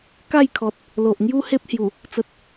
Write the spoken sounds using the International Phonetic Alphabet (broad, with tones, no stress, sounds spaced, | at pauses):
k a˥˧ j kʰ ɔ˨ t̚ | l o˨ ʔ ŋ j u˦ h e˦ p̚ h j u˨˩ | t͡s ə˨ t̚